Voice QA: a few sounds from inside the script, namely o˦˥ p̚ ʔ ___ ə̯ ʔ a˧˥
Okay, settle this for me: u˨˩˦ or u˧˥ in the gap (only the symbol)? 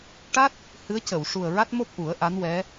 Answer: u˨˩˦